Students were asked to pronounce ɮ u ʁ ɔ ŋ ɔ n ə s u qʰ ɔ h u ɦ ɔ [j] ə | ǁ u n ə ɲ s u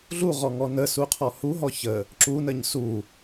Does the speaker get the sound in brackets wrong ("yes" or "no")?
yes